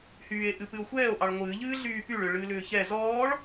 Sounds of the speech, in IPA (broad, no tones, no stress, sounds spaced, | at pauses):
h yː e̯ ʔ ɨ p ɨ o̯ xʷ ɛː o̯ ʔ ɑ ɭ ŋʷ ɨː ʎ ɨː ɮ yː p y ɭ ʏ ɭ ɨː l ʏː ç ɛ z ɔː ɭ